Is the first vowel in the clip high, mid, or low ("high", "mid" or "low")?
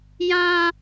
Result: low